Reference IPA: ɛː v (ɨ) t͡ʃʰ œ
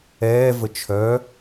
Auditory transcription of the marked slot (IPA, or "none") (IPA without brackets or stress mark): ə